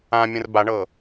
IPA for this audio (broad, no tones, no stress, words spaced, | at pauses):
ãmʲə̃r baɳɤ